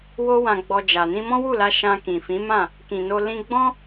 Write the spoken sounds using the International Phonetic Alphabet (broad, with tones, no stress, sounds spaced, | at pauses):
w o˦ w ã˧ ɡ͡b ɔ˧ d͡ʒ a˨ n ĩ˧ m ɔ̃˦ w u˦˨ l a˧ ʃ ã˧ k ĩ˨ f ĩ˨˦ m ã˦˨ | k ĩ˨ n o˧ l ĩ˧ ɡ͡b ɔ̃˦